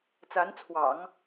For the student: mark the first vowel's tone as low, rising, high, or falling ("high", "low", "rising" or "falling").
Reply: rising